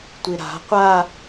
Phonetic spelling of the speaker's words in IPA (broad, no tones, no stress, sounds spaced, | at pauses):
tʷ i ɾ a̤ qʷ a